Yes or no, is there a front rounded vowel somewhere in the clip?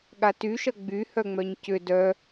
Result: yes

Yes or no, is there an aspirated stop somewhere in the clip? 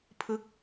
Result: yes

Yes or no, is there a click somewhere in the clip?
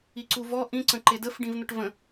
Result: yes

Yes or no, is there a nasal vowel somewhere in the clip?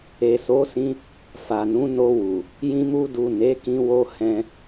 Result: yes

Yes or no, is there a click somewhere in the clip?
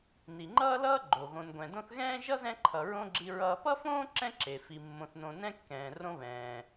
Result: yes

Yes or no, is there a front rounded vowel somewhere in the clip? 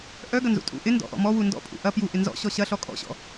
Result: yes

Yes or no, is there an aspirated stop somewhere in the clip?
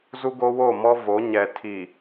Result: yes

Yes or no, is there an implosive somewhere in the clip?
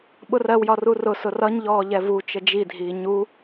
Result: yes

